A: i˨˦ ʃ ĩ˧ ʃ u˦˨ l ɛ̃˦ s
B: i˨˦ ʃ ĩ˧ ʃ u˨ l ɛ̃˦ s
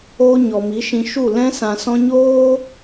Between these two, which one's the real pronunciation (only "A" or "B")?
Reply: A